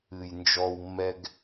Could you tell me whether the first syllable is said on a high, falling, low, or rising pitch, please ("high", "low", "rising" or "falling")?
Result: low